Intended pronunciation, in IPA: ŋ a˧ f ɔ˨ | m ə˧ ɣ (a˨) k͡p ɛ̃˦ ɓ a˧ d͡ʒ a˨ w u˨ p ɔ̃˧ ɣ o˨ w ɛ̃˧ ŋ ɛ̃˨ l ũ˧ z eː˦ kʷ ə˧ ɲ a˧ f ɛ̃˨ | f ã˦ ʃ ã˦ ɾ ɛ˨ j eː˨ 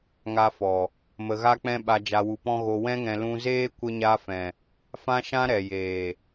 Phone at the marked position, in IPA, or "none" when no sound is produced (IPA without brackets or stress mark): a˦